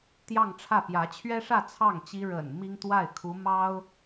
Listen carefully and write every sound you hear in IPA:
t̪jɑ˥˧ŋʈ͡ʂʰä˥˩ pjä˧˥t͡ɕʰɥɛ˥ʂä˥˧ t͡sʰɑ˥˩ŋt͡ɕi˥ ɻə̰˨˩n mi˥ŋt̪wa˥˩ɪ̯kʰu˧˥ mɑ˥ʊ̯

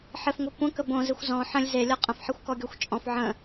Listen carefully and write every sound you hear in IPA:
ħɪfŋʷə kʷə̃kə bõzɪxʷ zɔ̃ ħə̃lʲ zelʲɔ qʼə̃fħexʷkɔɡʲɔxʷ t͡ʃʼɔ̃f ʕə̃

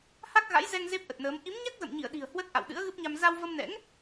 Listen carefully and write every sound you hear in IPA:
ha˦˥k̚ɣa̰˧˥j zɛ˧ŋ ze˦˥p̚ʔə˨˩t̚nəː˨˦m ʔi˨˦mɲa˦˥k̚ zə̰˧˨mɲi˧˩ə̯ɗi̤˨˩ə̯ hwə˦˥t̚ʔa̰˧˨w ɗɨ̰˧˥ə̯ɣɨ˦˥p̚ɲa˧m za˧wvə˧mnɛ̰˧˥ŋ

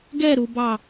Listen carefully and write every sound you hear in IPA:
ɡɛɾubɑ

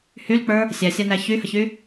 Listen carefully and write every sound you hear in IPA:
hylk͡pə˞ | sʲæsʲanæ çyhəçy

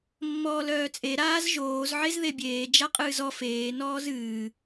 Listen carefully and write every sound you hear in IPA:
mːɔːlœːt͡sʼe ɾaːzʒoːz ʕezðebʲeː d͡ʒaqʼɨːzɔ feː nɔːzɨː

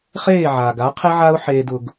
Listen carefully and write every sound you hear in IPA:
χeː˦˨ʕaː˨ɡa˨˦ qʰe˦ʕa˦ʊ̯ħeː˧d ʊ˦ɡ

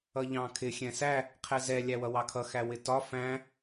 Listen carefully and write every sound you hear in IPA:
ʌʎɑ̃kʰɪ xʲɛ̃sæ | qʰɛzɛ lʲæwʌwɑkʰʌ xæwɪtɒ fæ̃

